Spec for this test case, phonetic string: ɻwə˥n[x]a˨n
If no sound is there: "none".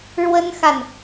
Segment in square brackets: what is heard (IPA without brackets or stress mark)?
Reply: x